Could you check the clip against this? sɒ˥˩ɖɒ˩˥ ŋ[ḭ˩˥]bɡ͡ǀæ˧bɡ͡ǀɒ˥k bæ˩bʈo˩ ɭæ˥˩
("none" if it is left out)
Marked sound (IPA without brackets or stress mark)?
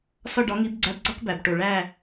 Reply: i˩˥